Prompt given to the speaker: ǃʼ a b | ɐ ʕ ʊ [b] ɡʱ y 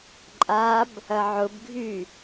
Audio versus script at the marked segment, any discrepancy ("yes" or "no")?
no